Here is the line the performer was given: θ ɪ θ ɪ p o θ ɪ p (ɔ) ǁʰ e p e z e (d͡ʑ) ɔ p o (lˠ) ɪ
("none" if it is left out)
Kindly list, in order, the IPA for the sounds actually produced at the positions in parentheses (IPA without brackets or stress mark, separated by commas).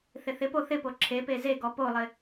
o, ɡ, lˠ